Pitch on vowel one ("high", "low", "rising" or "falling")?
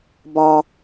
low